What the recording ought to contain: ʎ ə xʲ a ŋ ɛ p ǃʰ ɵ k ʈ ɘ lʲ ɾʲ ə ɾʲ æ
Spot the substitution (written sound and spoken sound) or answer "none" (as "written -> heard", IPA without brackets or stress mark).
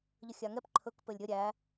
ʈ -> p